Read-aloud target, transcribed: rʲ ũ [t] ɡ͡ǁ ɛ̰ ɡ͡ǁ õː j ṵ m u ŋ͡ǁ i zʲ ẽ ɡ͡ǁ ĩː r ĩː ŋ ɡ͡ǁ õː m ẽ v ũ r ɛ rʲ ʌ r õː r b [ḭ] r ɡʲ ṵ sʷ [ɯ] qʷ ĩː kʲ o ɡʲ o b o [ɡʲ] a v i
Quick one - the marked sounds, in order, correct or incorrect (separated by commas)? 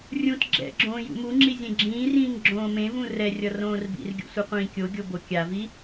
correct, correct, correct, incorrect